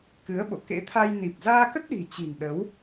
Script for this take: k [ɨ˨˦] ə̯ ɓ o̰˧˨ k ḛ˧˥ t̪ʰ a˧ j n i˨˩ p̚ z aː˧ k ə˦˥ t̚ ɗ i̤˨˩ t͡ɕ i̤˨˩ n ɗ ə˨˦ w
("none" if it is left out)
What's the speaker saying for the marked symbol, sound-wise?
ɨ˨˦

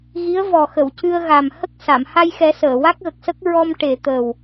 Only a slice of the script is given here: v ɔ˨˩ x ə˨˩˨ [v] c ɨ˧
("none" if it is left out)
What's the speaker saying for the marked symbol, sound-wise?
w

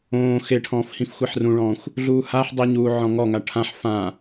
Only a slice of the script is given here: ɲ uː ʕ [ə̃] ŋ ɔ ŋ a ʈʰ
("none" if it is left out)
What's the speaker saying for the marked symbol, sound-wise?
ɔ̃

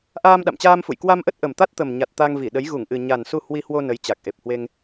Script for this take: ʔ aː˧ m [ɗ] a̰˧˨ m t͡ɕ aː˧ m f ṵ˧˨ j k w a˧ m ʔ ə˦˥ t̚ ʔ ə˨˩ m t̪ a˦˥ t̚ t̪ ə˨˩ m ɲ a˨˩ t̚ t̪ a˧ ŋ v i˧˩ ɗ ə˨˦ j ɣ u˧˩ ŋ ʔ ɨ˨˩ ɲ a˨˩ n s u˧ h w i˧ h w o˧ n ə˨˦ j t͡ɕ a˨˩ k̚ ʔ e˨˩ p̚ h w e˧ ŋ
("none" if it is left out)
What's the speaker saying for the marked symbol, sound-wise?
ɗ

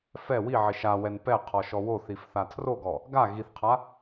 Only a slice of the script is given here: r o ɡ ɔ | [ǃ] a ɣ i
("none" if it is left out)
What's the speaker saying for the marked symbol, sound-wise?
ɡ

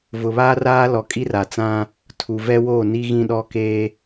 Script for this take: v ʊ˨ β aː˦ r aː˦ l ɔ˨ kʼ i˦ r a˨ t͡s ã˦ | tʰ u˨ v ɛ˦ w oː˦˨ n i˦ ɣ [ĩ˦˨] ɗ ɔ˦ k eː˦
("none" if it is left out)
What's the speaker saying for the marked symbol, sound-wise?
ĩ˦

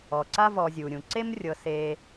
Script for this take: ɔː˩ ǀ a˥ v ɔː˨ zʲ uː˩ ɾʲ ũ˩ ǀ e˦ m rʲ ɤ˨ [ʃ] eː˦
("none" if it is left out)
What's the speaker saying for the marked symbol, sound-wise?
s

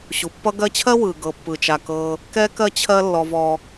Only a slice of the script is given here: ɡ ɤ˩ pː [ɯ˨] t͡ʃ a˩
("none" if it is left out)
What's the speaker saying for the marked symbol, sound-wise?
ɯ˩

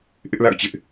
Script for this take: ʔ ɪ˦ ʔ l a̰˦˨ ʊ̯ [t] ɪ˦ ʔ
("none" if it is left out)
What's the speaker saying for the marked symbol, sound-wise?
t͡ɕ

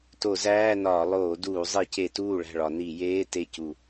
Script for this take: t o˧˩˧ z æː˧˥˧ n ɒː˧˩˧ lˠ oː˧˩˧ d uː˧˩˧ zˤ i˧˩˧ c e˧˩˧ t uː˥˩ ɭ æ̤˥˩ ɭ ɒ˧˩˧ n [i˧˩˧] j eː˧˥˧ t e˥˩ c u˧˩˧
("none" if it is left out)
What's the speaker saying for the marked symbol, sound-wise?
i˧˩˧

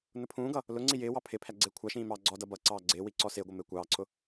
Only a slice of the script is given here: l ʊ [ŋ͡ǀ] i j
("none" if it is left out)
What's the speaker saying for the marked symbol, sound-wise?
ŋ͡ǀ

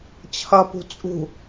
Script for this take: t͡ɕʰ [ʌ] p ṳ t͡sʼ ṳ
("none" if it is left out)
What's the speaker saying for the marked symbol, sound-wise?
ʌ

